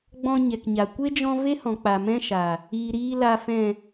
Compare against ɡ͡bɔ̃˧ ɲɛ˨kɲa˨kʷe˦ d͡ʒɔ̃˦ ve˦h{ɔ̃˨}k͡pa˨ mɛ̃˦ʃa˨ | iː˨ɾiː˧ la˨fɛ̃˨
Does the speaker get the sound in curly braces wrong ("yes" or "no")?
no